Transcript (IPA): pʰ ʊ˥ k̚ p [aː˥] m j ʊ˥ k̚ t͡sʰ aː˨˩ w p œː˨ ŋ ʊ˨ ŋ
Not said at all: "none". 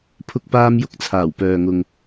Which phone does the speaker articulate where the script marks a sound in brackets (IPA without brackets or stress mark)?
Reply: aː˥